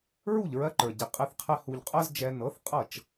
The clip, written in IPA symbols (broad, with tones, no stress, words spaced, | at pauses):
ɹu˥˩ʎɹɜ˧ǃə˞˩ɟi˩ qʼɛ˧θqʰɛ˧ hu˧ʎ qʼɜ˥zd͡ʒɛ˧ nɤ˩˥θ qʼɤ˥˩t͡ʃ